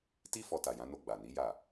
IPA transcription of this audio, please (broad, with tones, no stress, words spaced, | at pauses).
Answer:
ti˦ fɔ˧ta˨jã˨˦no˧ ɡ͡ba˨ni˨˦ja˦˨